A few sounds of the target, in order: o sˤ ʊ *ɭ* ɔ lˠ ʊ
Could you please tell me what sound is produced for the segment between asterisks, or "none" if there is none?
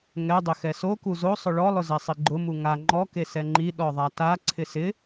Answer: ɭ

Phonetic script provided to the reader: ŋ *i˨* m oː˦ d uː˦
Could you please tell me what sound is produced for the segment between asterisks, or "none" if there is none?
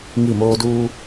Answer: i˦˨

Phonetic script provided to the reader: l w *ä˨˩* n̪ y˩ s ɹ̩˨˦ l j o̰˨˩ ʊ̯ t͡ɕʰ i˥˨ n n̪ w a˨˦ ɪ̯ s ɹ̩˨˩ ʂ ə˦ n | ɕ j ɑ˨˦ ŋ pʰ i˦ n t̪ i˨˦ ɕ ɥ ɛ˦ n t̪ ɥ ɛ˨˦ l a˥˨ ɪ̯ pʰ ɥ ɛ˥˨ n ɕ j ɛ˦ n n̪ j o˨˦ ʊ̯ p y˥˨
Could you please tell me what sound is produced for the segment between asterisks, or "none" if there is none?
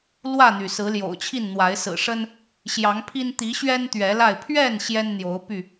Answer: ä˥˨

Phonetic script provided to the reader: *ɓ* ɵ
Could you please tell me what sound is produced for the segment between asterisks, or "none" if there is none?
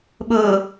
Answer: ɓ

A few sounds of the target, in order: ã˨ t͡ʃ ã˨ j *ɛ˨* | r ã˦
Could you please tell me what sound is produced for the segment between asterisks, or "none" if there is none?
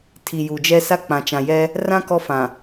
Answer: ɛ˦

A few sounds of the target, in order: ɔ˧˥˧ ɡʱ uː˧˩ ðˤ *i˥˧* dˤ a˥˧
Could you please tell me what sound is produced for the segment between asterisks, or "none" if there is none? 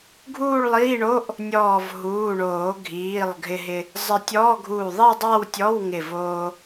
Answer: i˥˧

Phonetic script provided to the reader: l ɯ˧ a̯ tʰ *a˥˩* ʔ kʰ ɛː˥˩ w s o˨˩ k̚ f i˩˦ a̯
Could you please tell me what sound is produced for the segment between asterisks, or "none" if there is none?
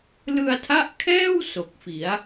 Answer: a˦˥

